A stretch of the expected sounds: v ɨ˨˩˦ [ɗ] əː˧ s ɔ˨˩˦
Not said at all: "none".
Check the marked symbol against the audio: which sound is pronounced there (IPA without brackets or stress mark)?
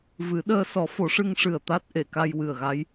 ɗ